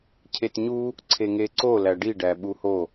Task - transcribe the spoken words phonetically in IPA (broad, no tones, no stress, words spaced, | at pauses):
cʰetɲu | ǀʰeŋeǀo læɖi ɖæɓuho